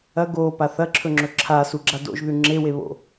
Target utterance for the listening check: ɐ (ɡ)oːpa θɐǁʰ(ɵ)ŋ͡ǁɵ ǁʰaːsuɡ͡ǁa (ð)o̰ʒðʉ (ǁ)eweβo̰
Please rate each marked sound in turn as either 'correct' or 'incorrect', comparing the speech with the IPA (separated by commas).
correct, correct, incorrect, incorrect